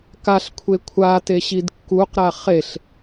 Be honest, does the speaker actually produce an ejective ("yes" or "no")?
no